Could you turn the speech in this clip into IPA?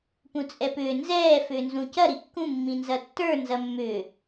p ũ t͡sʼ ɛ p ʏː n z ɛː f ʏː n z ũ c ɐ ɾ i kː ũ mː ĩ n z ɐ tː ə˞ n z ɐ mː ʏː

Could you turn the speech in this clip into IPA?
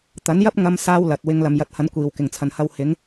t̪ ɐ˨˥ n j ɐ˥ p̚ ŋ ɐ˥ m s aː˥ w l ɐ˨ t̚ w ɪ˧ ŋ l ɐ˨ m j ɐ˨˥ t̚ h ɐ˨˧ n kʷ iː˨˩ w k ɪ˨˩ ŋ t͡sʰ ɐ˨˩ n h ɐ˧ w h ɪ˨˥ ŋ

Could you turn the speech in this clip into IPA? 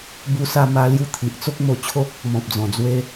b u˧ s a˧ m a˧ l j u˧ t̪ʰ i˨ ʔ t͡s o˦ k̚ m o˧ t͡ɕʰ o˦ k̚ | m ɔ̃˨ p̚ d͡z ɔ̃˨˩ d͡z w e˧

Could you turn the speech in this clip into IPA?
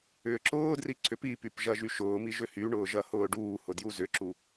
ʏː ǁ ʊː d r i ǀ ʏ p i p y p ʒ ɐ ʒ y ʃ ʊː m i ʒ ʏ h y ɳ ʊː ʒ ɐ h ʊː ɖ uː h ʊ d j u z ʏ ǁ u

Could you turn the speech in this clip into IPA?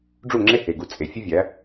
ɖ͡ʐ u˦˨ ŋ͡ǁ e˦ h e˨ ɡ u˨ t͡sʼ e˨ fʲ e˦ vʲ æ˨˦

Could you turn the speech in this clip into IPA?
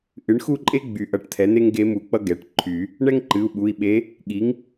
ʔ ɨ˩˥ ɳ x u˥˨ ǃʼ e˥ ɡ͡b y˨˩˦ ʔ ʌ˩˧˩ ʈ t̪ʰ ɛ˩˥ n̪ e˥ ŋ ɡ e˧˥ m u˨˩˦ k͡p ʌ˥ ɡ ɛ˩˧˩ ʈ ǃʰ y˨˩˦ | ɳ ɛ˥ ŋ ǃ ɨ˩˧˩ u̯ ɓ u˩˧˩ i̯ ɓ e˧˥ | ɠ i˩˥ ŋ

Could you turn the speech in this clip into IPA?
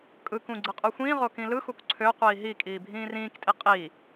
kʼ ɯ k ũ ɡ͡ǀ ɯ qʼ u xʷ ĩː ʁ o k ĩ l ɯ x u k ǀʰ ø qʷ iː ɦ i kʼ iː bʱ ĩː r ĩː k tʼ i qʼ i

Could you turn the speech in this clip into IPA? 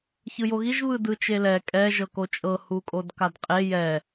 ç ɯ j o ɣ i ʒ β ɯ d ɯ t͡ʃ e l ɛ kʼ ɛ ʒ ɤ k o t͡ʃʼ ɤ h u kʼ o d k a d qʼ e j ɛ

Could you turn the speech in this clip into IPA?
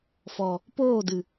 f ɔ˨ | p oː˦˨ d ɨ˨

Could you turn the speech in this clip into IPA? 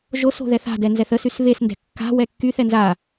ʒ o s o̤ ð ɛ θ a̤ d ɛ n z ɛ θ ə s y s β e s n d ɛ̤ kː a̤ w ɛ kː y θ ɛ n z a

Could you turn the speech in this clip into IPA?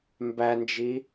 m b æ n d͡ʒ i

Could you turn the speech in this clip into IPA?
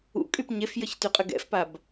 ṵ kʼ y p ɲ e f j ə ç t y qʼ ə ɡ ɛ̰ f p a b

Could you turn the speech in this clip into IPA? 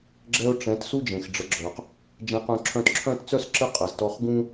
ɡ͡ǁ ɛ˧ ʊ̯ ʈ͡ʂ ɛ̃˨˦ t s u˦ d͡ʒ ẽ˨ x ɖ͡ʐ ə˨˦ ɡ͡ǁ œ˨ q | d͡ʒ ɛ̃˧ q œ̃˧ ǁʰ œ̃˧ t ǁʰ œ̃˦ t t͡s œ˦ s ǁ ə˧ qʼ a˨ z t ɔ˧ χ ɡ ũ˦

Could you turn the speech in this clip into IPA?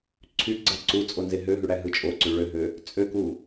ǀʰ y ɡ͡ǀ ɑ ǀ u t͡sʼ o n z e ɦ ø ɦ y ɽ æ ɦ ɯ t͡ʃʼ o ǀ y ɭ ø ɦ ø | t͡sʼ ø k u

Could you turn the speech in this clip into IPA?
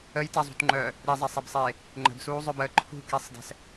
ə j t ɛ zˤ ṳ t ŋ͡ǃ œː | ɾ i zˤ ɛ sˤ e b sˤ eː | ŋ͡ǃ ə̤ b s uː zˤ œ b əː ǃʰ ṳ k i sˤ d ɛ̤ s

